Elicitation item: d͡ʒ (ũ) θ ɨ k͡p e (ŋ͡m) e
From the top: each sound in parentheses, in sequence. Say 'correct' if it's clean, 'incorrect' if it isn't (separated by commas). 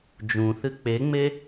correct, correct